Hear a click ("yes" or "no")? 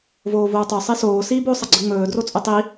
yes